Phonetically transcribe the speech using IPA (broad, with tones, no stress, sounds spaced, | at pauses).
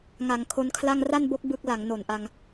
ŋ a˩˦ ŋ kʰ o˦˥ n kʰ l a˥˩ ŋ r a˥˩ n b o˦˥ k̚ b ɯ˦˥ k̚ l a˩˦ ŋ n o˨˩ n ʔ a˧ ŋ